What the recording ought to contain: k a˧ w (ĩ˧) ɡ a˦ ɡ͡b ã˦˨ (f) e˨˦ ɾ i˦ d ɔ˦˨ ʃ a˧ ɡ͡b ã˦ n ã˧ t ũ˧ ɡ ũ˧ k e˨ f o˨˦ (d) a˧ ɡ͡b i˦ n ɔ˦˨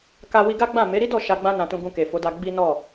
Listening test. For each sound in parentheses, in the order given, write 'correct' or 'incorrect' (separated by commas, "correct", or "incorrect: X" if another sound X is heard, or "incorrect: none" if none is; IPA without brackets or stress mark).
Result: incorrect: i˧, incorrect: m, correct